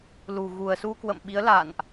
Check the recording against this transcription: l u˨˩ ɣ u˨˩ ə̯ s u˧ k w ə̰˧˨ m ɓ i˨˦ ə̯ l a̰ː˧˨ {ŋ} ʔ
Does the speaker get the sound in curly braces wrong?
yes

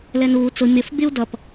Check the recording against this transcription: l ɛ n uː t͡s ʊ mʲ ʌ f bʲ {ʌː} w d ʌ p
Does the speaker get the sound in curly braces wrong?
yes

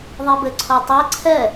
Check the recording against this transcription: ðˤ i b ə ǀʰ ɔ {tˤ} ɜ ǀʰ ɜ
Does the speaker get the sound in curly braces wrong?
no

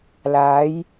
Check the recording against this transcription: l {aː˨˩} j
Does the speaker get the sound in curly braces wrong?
yes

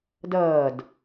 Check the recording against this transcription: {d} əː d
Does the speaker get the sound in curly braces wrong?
no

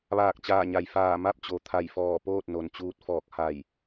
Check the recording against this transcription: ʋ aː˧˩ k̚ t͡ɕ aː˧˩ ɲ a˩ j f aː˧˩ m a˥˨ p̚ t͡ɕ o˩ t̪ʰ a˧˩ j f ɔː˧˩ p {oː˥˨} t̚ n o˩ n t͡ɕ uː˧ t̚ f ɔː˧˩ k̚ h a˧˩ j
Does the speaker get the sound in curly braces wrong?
no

